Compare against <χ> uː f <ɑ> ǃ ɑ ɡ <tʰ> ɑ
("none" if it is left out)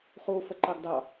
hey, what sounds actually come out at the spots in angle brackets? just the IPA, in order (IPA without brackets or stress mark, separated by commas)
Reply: χ, ə, d